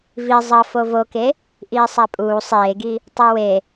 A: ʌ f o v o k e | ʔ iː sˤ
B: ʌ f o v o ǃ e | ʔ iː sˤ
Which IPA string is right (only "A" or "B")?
A